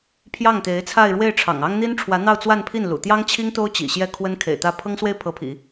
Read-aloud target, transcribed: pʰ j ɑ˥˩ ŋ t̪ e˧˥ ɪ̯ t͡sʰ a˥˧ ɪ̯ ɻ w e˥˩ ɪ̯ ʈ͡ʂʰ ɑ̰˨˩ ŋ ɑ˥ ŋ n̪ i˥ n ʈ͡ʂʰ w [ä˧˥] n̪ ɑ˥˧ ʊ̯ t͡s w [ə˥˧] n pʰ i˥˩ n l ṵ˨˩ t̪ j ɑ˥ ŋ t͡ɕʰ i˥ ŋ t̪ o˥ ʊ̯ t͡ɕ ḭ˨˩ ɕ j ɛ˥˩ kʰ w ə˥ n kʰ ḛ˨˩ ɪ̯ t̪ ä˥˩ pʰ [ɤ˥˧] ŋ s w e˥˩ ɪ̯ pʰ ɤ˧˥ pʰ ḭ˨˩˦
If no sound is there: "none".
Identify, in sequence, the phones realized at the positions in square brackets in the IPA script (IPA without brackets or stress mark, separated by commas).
ä˧˥, a˥˧, ɤ˥